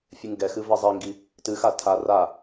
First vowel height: high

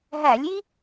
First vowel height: low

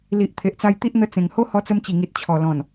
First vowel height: high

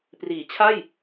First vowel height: high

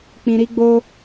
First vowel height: high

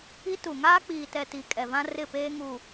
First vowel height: high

